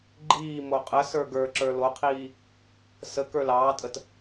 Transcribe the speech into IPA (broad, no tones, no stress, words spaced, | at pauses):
ɡ͡ǃiː moqʼəsə˞ ɡə˞ǁə˞ loqʰiː | sə kə˞lɑːtʼət